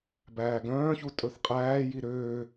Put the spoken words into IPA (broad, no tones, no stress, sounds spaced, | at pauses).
b æː ɡ œ̃ː ç u tʼ ɵ θ qʼ æː j i ɾ øː